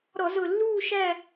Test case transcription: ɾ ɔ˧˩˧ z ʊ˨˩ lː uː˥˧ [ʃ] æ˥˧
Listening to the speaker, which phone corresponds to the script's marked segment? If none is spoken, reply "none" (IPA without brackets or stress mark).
ʃ